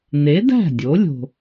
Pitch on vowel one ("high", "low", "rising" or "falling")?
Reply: rising